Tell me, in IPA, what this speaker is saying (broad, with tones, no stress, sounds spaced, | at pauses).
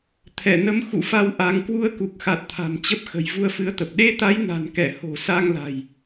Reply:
t̪ʰ ɛ˧˩ n ə˨˦ m x ṵ˧˨ f a˧ w ʔ a˨˦ ŋ k w u˧ ə̯ k u˨˩ k̚ x a˨˩ t̚ t̪ʰ a̤˨˩ m t͡ɕ ə˦˥ p̚ x ə̤˨˩ j v u˧ ə̯ f ɨ˨˦ ə̯ t̪ ə˨˩ p̚ ɗ e˧ t̪ a˨˦ j n a̤˨˩ n k ɛ˧˩ h o̤˨˩ s a˧ ŋ l a̤˨˩ j